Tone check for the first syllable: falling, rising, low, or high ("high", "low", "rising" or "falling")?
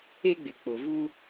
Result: high